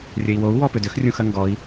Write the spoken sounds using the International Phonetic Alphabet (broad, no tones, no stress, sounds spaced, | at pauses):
rʲ ɘ i̯ w o u̯ w ɔ p ʏ d ʏ x rʲ ũ x ɐ ŋ ɡ ɔ i̯